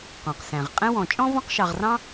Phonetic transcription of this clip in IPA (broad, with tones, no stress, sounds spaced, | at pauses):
q ɔ̃˩ q s æ̃˩ ʁ qʼ ɛ̃˥ w ɔ̃˨ t͡ʃʼ ɔ̃˥ v ɔ̃˦ q ʃ ɑ˨ ʁ r ɑ̃˥